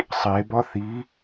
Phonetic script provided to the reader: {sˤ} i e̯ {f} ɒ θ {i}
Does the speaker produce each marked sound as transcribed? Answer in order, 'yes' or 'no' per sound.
yes, no, yes

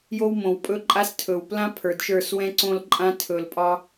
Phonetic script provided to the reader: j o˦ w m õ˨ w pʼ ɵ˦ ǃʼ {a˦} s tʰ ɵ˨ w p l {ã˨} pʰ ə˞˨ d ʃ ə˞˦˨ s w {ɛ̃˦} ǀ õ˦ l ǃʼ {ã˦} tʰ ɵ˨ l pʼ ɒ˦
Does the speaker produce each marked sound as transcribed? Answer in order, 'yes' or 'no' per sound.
yes, no, yes, yes

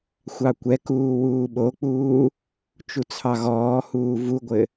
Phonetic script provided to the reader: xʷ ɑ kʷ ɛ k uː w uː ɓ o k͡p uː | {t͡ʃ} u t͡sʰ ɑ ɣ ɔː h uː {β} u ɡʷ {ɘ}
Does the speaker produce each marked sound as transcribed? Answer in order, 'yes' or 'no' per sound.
yes, no, yes

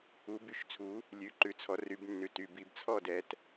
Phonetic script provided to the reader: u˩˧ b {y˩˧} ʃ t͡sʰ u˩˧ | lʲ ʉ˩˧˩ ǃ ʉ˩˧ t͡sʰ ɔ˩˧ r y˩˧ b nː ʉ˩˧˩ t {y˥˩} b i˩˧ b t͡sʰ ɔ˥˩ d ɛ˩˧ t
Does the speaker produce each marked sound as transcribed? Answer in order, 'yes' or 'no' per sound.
yes, no

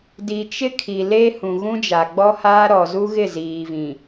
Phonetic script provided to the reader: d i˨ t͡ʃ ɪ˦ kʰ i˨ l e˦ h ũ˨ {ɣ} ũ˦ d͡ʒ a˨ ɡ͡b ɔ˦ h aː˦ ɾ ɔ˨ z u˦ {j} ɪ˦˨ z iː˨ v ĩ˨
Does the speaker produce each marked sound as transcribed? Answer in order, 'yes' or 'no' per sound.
yes, no

